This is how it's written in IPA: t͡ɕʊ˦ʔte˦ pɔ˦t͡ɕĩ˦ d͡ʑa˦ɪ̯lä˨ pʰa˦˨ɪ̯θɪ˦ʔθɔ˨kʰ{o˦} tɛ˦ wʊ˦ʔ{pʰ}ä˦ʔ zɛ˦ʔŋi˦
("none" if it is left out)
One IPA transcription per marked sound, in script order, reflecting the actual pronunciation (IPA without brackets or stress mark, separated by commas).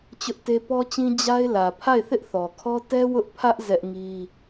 ɔ˦, pʰ